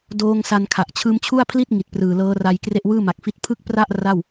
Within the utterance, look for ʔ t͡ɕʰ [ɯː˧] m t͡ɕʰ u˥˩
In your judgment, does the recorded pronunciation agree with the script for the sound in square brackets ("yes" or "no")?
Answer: yes